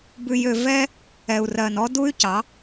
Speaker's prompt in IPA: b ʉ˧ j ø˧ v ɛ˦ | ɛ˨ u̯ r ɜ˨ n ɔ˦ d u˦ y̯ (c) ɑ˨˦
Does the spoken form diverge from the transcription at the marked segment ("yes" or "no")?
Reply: no